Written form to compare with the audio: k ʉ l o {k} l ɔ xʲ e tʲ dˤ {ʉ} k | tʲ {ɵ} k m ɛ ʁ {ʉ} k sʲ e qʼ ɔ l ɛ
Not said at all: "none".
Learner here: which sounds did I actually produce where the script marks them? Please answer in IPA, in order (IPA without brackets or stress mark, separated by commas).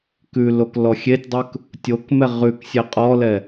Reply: k, ʉ, o, ʉ